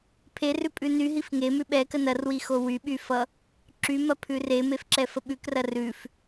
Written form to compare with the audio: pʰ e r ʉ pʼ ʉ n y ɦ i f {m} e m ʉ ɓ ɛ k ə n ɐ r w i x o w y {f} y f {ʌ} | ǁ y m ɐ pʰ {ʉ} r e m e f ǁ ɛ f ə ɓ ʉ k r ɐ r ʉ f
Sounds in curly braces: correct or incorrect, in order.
incorrect: ŋ, incorrect: ɓ, correct, correct

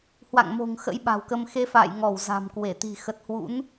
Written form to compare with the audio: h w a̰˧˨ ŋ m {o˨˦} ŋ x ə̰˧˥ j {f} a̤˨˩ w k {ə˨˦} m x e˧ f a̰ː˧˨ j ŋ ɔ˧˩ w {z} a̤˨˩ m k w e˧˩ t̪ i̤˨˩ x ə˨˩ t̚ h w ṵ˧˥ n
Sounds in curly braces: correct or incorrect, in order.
incorrect: o̤˨˩, incorrect: ɓ, incorrect: ə˧, correct

